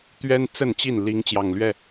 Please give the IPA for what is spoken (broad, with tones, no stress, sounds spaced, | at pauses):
t̪ ɥ ɛ˦ n t͡s ə˥˨ n t͡ɕ i˥˨ n l i˨˦ ŋ t͡ɕ j ɑ˨˩ ŋ l ɥ ɛ˥˨